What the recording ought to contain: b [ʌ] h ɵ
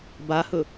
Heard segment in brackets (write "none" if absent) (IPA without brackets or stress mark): a